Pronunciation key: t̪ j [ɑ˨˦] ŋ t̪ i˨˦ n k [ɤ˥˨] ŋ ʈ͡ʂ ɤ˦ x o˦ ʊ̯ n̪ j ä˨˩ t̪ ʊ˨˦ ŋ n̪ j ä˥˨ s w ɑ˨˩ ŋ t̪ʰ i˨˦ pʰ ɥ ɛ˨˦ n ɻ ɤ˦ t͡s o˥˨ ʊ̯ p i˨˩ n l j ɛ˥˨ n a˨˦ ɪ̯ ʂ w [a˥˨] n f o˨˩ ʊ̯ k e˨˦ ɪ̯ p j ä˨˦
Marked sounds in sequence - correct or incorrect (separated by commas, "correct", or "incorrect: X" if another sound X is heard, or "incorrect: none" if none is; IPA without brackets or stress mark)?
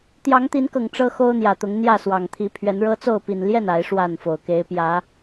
correct, incorrect: ɤ˨˩, correct